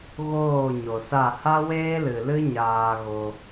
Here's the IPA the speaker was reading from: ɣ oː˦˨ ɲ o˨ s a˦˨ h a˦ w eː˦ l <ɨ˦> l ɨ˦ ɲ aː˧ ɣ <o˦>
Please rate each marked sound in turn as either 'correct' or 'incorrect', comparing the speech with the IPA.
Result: incorrect: ɨ˨, incorrect: o˧

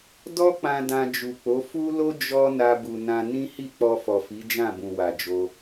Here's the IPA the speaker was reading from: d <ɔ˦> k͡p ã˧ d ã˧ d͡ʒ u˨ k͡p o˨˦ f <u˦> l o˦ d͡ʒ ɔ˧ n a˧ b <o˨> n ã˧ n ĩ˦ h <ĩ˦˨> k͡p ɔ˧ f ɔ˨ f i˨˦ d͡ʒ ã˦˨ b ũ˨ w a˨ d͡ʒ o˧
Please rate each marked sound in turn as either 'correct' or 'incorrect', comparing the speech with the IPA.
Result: correct, correct, incorrect: u˨, incorrect: i˦˨

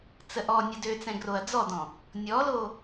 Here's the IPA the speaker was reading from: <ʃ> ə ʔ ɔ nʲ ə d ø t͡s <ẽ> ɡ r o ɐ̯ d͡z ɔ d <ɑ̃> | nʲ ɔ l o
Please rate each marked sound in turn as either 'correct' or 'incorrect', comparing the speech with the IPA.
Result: incorrect: t͡s, incorrect: ɛ̃, incorrect: ɔ̃

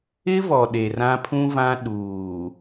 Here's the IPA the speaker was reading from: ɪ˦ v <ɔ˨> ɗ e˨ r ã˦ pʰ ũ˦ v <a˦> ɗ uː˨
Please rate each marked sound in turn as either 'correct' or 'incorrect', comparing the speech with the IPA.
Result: correct, incorrect: ã˦

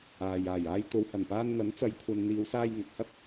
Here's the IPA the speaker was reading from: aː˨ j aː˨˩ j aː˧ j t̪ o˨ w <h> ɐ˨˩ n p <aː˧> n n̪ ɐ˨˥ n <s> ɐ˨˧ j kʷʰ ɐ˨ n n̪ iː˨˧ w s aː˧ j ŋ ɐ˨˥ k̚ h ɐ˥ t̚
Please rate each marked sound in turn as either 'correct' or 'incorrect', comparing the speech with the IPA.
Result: correct, correct, incorrect: t͡s

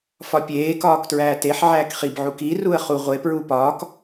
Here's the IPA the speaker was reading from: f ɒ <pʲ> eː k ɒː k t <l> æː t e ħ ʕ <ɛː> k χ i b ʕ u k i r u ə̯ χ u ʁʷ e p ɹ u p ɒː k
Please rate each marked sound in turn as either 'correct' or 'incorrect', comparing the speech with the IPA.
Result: correct, incorrect: ɹ, incorrect: æː

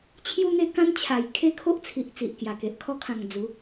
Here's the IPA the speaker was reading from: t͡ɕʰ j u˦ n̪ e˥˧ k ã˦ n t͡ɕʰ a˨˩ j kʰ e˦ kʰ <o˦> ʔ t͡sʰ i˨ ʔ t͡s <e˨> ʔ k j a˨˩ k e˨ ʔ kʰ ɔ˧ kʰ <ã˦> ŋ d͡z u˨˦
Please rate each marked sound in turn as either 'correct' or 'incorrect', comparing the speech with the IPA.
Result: correct, incorrect: i˨, incorrect: ã˨˩

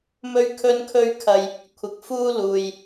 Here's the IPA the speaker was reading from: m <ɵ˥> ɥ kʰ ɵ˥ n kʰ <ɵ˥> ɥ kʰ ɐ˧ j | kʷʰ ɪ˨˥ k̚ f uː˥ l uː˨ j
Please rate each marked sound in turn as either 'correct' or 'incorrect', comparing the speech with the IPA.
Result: correct, correct

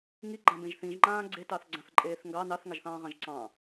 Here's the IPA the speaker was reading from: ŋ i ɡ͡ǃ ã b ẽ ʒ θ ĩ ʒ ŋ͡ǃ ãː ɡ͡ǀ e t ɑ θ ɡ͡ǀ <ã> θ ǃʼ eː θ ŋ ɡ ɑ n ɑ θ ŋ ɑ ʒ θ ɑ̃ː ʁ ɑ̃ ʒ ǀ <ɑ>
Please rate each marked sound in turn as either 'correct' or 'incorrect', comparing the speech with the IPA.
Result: correct, incorrect: ɑ̃

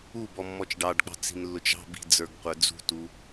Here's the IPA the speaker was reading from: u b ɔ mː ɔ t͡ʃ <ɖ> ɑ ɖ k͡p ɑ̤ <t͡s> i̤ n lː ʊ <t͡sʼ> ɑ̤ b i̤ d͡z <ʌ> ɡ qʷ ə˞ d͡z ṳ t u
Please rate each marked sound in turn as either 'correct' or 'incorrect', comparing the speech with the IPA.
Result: correct, correct, incorrect: t͡ʃ, incorrect: ə˞

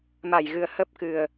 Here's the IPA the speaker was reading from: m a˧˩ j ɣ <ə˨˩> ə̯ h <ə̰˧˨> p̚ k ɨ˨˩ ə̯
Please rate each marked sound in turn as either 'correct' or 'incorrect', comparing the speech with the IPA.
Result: incorrect: ɨ˨˩, incorrect: ə˦˥

